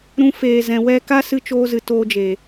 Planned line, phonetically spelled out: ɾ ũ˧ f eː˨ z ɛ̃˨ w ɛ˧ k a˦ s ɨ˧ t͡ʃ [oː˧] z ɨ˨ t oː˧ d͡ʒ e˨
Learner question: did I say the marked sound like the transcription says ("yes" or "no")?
yes